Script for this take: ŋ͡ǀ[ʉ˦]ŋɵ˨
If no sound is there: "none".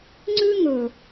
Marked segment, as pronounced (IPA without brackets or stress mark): ʉ˦